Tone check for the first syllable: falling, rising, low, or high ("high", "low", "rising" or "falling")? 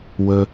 high